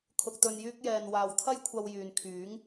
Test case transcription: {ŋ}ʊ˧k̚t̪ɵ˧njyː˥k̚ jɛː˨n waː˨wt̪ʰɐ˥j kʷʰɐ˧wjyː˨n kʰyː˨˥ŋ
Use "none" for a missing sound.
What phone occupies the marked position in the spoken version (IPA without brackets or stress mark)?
kʰ